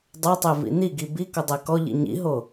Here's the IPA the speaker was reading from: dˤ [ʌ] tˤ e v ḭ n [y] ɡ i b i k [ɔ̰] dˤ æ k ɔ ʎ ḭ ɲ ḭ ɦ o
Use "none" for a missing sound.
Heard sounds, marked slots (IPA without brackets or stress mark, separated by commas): ʌ, i, ɔ